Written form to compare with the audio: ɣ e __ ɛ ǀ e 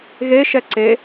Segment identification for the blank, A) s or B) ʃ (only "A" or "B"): B